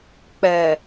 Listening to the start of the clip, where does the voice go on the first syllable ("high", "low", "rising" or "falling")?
low